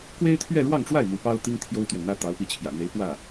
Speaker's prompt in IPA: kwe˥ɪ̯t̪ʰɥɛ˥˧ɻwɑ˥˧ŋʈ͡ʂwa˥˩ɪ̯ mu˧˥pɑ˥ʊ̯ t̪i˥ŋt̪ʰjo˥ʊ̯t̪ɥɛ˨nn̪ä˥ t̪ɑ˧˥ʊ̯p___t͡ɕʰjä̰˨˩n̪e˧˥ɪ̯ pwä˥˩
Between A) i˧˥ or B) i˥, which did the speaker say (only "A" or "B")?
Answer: A